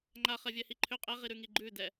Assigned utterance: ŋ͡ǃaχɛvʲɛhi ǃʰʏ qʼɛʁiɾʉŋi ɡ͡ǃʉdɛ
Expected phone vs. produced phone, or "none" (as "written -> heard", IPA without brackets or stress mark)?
none